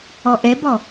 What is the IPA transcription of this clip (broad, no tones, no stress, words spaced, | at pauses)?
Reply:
ɔʔɛbɔ